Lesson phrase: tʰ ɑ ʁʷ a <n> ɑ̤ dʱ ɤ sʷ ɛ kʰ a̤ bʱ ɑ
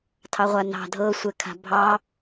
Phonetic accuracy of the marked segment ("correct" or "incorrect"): correct